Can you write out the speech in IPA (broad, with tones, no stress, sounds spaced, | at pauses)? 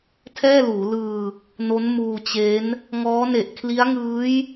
tʰ ɛː˥˩ l uː˩˦ l ɯː˧ | n o˦˥ n m uː˧ t͡ɕ e˦˥ n | ŋ ɔː˦˥ n e˨˩ ʔ kʰ l i˦˥ a̯ ŋ ɯː˦˥ j